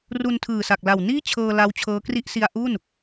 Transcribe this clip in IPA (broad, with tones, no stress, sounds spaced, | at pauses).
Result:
r u˧ n tʰ ɯː˨˩ s a˨˩ k̚ l a˨˩ w n iː˥˩ t͡ɕʰ ɤː˧ l a˦˥ w t͡ɕʰ ɤː˦˥ k r i˥˩ ʔ s i˧ a̯ ʔ u˥˩ n